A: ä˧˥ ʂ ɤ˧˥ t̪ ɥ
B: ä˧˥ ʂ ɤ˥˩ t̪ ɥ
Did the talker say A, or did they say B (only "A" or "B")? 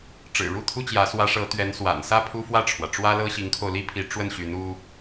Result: A